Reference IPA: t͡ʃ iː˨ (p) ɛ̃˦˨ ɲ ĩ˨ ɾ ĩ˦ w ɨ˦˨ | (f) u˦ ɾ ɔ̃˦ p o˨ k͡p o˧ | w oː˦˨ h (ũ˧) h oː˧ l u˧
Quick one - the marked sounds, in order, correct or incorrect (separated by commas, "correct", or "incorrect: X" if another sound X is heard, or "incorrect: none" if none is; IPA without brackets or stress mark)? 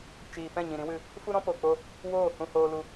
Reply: correct, correct, correct